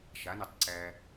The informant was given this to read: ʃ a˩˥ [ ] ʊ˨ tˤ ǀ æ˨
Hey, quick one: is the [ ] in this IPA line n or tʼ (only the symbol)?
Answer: n